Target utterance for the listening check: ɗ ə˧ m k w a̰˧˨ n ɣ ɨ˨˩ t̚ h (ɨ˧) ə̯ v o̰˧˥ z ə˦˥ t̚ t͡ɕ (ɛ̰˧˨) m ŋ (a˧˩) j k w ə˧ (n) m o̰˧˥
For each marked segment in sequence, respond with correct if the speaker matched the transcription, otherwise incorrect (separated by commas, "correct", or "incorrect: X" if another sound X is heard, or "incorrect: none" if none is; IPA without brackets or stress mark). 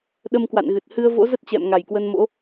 correct, correct, correct, correct